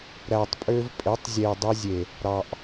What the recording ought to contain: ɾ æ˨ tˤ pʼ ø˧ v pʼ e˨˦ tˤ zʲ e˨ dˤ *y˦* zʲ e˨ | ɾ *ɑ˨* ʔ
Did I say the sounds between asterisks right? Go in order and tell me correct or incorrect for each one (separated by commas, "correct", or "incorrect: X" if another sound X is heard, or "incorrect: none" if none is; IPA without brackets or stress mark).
incorrect: e˦, correct